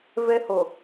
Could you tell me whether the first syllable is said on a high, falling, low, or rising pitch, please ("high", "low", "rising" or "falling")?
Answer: high